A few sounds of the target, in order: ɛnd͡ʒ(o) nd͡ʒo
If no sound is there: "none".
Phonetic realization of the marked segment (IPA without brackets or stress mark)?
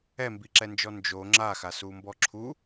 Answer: ɔ